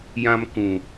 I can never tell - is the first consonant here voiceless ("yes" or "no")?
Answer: no